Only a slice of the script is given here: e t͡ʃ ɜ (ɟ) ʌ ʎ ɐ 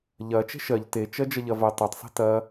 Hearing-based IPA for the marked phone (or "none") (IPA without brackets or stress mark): d͡ʒ